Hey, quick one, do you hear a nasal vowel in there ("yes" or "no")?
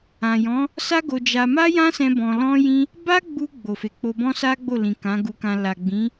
yes